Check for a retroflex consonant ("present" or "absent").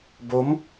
absent